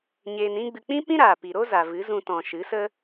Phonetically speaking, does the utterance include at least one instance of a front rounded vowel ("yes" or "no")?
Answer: no